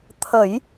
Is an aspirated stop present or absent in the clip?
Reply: present